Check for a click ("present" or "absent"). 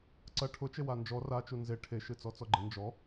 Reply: present